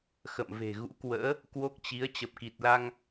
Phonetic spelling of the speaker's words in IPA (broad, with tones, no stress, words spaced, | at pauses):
xə̰˧˨mve̤˨˩ɣṵ˧˥kwə̰ː˧˥ | kwo˦˥k̚t͡ɕi˨˦ə̯ t͡ɕə˨˩p̚ki˨˩t̚la˧ŋ